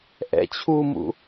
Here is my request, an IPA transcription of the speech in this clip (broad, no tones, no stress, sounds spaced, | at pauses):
ʔ ɛ̰ t͡ɕʰ u m ṵ